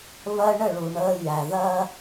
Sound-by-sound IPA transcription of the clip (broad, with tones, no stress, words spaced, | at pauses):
βɜ˦ɳə˦˨ ɭu˨ ɳəː˦ jæ˨ðɜ˦